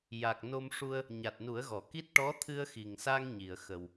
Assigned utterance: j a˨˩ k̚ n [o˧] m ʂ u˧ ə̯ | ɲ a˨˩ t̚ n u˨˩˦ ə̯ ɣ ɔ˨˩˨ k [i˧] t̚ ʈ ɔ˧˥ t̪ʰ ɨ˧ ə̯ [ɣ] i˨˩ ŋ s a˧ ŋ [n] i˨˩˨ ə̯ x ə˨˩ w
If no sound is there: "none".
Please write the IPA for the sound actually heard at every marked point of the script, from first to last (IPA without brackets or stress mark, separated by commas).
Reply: o˧, i˦˥, x, ɲ